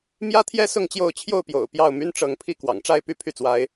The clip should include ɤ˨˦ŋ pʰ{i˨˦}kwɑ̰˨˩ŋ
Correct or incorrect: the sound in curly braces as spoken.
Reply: incorrect: i˥˨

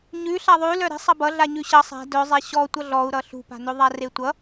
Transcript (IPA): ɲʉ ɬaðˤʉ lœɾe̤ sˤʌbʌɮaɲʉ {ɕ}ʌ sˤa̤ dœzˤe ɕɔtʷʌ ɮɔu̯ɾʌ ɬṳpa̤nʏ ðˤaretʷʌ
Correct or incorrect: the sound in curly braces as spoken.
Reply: correct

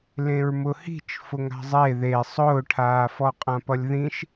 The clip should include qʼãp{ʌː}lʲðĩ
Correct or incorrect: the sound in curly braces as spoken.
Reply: incorrect: ʌ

